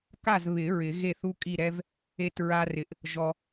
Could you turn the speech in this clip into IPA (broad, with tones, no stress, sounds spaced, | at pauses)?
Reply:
k a˥˨ z β ɪ˨˩˦ ɹ ɪ˨˩˦ ɣ e˥˨ θ u˥ kʼ i˥˨ ɾ ɛ˥ v | e˥ t ɹ a˥ r ɪ˨ ʔ | ʒ ɔ˨